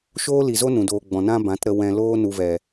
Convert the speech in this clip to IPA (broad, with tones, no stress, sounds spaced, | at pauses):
ʃ oː˦ l i˨ z o˦ n ũ˨ d oː˧ ɡ͡b ɔ̃˨ n ã˦ b ã˨˦ t ɾ ə˧ w ɛ̃˧ l oː˦ n u˧ v ɛ˨